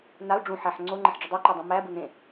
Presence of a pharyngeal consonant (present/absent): present